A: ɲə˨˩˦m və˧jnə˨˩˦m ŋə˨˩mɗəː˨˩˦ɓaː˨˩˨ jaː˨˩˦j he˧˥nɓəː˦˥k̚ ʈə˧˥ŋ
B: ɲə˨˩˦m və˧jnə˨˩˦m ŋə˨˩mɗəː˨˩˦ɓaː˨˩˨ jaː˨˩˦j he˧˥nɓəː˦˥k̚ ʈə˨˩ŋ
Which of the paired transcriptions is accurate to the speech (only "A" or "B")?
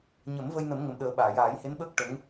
A